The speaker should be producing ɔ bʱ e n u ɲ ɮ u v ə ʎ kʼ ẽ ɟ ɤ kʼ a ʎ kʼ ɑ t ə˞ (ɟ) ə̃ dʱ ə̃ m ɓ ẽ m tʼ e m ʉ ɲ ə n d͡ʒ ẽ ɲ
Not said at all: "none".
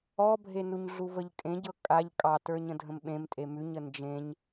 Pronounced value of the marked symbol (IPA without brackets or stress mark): ɲ